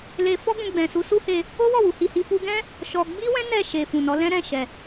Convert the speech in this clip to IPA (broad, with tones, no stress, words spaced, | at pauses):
le˧ fɔ˦ ɡɛ̃˧ɡ͡bɛ̃˨su˨˦ su˦he˧ | o˦wɔ˦˨ wu˨˦hi˧hi˦ fu˧ɡɛ̃˦ | ʃɔ˧ ɡ͡bi˦wɛ̃˦ nɛ˦˨ʃe˨ fũ˨nɔ˨˦ lɛ̃˦ɾɛ̃˦˨ ʃɛ˨